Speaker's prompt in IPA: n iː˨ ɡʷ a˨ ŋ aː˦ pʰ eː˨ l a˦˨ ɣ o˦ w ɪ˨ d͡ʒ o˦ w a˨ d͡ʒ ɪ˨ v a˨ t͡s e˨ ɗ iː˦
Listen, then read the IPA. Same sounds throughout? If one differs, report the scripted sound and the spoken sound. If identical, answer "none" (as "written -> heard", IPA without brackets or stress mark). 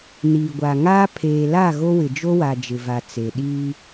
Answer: none